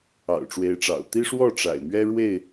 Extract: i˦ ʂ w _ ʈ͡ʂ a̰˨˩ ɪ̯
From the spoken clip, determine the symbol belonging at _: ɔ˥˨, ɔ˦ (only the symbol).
ɔ˥˨